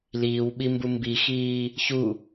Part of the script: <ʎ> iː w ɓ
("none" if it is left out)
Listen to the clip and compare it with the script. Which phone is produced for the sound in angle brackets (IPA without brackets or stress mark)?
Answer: l